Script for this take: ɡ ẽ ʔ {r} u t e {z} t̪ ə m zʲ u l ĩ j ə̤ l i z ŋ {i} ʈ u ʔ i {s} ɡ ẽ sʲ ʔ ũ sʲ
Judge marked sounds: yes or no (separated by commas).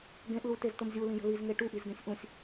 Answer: no, yes, no, no